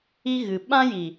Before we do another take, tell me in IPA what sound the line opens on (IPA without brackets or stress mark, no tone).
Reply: i